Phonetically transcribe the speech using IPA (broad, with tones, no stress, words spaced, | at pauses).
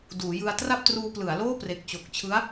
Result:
duː˩˦jɯ˧a̯ tra˥˩p̚truː˧plɯ˩˦a̯ loː˥˩pre˨˩k̚t͡ɕo˨˩k̚t͡ɕʰɯ˦˥a̯